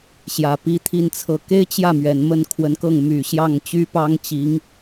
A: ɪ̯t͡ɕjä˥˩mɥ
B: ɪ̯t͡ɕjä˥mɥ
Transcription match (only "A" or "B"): A